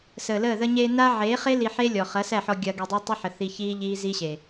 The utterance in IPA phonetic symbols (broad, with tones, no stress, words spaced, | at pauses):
səː˨ləː˦˨ ðə˧ɲeː˧ na˦ ʕeː˨˦χe˦ li˧ħe˦lʲɔ˨ χɐ˨˦sæ˦˨ħɔ˧ ɡʲɐ˧ ɡe˧dˤæ˦ tˤɐ˦ħə˨ θi˧çiː˦ ʎiː˦zi˦ɕe˨